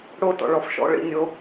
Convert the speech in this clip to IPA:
ɽo˧ tɔ̰˩ɭɔ˩fʃɔ̰˥˩ ɭḭ˥˩nʲo˧

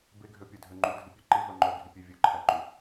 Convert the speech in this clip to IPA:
beɡʱøpʲœdʱø ŋ͡ǃudʱipʲʉ ǃivœ ŋ͡ǃœɡʱipʲe vʲɵǃʰæǃu

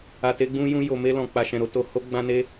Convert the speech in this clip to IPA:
a˨te˧ɡ͡bũ˧jũ˧ jo˨ me˧lɔ̃˨k͡pa˨ ʃɛ̃˨ɾo˧ to˨ ho˧ɡ͡bã˧ne˧

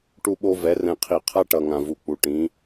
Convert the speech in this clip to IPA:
ʈu˦ɓo˦ vɛ˨˦ rɛ̃˨qʰi˨ qʰa˦ʈʌ˨ŋã˨vu˨ k͡pu˨ ʈĩ˨˦

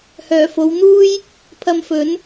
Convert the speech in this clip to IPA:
hœː˨˩fo˨˧wn̪uː˥j | pʰɐ˧mfɵ˨˥n

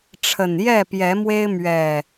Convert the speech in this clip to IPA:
ʈ͡ʂʰə˨˩njɛ˥˨pjɛ˨˦mwe˦ɪ̯ mɥɛ˨˩

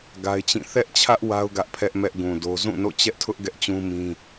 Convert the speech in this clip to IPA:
ɡa˦ɪ̯t͡ɕĩ˦˨ θɛ˦ʔt͡ɕʰä˦ʔ wa˦ʊ̯ ɡä˦ʔpʰɛ˦ʔmɛ˦ʔɡũ˨ do˦ zũ˦˨no̰˦˨t͡ɕɛ˦ʔtʰʊ˦ʔ ɡɛ˦ʔt͡ɕũ˦mĩ˦

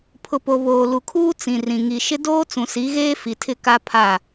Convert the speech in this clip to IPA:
pʰʊ˨po˨ βoː˨lu˨kʰuː˦ t͡sĩ˨rĩ˨ ŋi˨ʃɪ˦ doː˦t͡sũ˨ si˨˦ɣeː˦ fi˨tʰɪ˦˨ka˦ pʰa˦˨

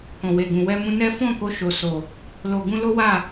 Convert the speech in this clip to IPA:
kɔ̃˨we˨ɡũ˨ wɛ˧mũ˧nɛ˦ fɔ̃˦˨ko˧ ʃo˨so˨ | lo˨ ɡũ˧lo˦ wa˦˨

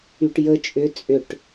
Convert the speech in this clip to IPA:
yʈjə t͡ʃʼʏ t͡sʼʏʈ

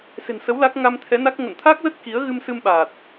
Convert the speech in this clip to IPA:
se̤˨˩nsə˨˦w la˦˥k̚ ŋa˧mt̪ʰɛ˨˦na˦˥k̚ ŋə̰˧˨nt̪ʰa˦˥k̚zə˦˥t̚ ki˨˦ə̯ɣɨ˧msɨ˧mɓaː˨˩t̚

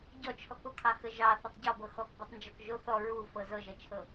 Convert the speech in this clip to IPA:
ɟɔt͡ʃʰɔkokʰɑ xəʒɑ θɐtˤɟɔbɤ xɔkbɔtˤnd͡ʒɔk ʒo θɔ ɹu fɤzɤʒɐt͡ʃʰɤ

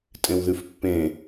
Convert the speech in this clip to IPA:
tʼẽwðʉfpːẽ

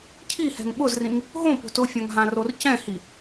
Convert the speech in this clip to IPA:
cʰihɛ̤ŋ ɓʊzrĩŋ | ɦõpo̤t ʊfʲãŋ ɦãrorcɛ̃hi

